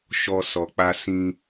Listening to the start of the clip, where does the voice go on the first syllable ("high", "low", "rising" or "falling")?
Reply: high